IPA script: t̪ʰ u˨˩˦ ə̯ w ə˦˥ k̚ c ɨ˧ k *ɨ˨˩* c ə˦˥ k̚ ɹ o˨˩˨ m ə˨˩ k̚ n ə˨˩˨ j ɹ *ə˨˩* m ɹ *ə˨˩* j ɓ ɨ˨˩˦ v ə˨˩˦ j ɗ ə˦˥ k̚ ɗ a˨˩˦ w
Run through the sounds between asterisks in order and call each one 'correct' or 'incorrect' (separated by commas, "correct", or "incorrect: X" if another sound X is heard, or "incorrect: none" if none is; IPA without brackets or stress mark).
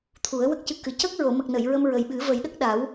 correct, incorrect: ə˧, correct